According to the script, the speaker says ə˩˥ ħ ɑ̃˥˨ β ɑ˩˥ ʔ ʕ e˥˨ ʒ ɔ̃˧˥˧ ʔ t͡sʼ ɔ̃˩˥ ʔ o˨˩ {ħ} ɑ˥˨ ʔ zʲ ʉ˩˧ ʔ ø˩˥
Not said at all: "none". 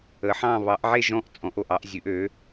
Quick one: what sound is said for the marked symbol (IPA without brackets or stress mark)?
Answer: ʔ